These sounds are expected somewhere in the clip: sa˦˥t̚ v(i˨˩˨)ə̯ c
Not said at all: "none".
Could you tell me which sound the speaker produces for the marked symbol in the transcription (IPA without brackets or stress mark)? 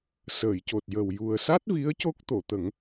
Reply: i˧˥